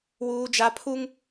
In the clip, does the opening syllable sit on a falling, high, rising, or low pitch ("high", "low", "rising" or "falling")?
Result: high